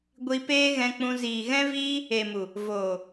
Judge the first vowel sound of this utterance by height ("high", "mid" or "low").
high